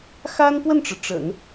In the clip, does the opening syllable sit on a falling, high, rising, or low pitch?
high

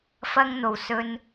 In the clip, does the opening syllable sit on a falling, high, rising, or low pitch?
high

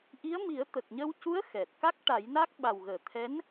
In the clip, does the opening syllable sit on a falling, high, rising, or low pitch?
rising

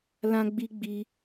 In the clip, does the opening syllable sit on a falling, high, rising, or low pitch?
high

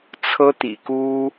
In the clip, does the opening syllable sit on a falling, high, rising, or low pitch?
high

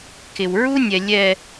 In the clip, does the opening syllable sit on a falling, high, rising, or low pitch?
low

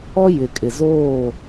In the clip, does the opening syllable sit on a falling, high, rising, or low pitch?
high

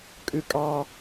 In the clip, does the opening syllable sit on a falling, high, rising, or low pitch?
high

